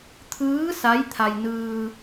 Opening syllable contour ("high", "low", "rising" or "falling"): rising